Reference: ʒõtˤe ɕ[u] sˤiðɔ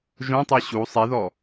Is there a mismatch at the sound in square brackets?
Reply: no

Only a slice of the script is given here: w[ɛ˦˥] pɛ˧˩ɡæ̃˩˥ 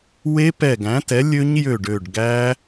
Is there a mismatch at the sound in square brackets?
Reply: yes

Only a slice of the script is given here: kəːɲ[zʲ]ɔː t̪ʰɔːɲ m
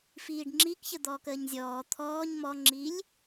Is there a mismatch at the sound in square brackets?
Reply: no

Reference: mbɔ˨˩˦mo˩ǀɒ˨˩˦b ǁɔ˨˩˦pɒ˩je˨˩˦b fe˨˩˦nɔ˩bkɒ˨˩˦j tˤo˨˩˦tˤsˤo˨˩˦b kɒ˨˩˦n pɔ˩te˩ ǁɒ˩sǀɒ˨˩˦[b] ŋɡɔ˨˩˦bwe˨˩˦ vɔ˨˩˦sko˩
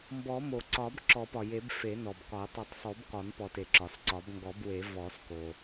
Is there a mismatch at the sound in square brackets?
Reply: no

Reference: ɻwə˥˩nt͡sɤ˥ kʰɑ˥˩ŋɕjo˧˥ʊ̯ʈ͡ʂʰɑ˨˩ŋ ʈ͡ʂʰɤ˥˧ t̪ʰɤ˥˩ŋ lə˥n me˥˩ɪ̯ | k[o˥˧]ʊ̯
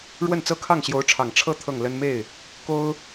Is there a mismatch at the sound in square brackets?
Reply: yes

